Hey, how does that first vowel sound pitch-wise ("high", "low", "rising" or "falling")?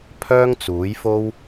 high